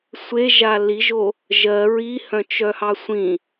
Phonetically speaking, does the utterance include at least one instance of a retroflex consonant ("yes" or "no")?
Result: no